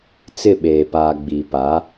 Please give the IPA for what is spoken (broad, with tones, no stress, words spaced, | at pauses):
t͡sɪ˦˨ɓeː˨ paː˨ɡ͡biː˨ pa˨˦